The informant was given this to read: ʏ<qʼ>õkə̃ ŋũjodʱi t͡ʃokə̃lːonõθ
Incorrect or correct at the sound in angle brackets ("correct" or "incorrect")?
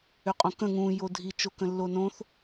correct